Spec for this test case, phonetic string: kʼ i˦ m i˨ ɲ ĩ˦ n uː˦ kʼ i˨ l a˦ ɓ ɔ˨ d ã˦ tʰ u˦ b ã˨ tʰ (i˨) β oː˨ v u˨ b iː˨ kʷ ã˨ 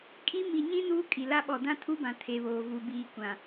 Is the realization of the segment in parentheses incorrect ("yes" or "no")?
yes